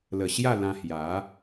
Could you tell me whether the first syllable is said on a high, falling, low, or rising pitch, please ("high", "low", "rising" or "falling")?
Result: low